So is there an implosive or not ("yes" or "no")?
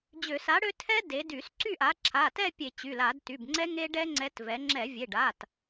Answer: no